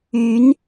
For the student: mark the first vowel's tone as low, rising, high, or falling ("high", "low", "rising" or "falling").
rising